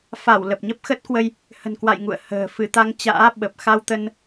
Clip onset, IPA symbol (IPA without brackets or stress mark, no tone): f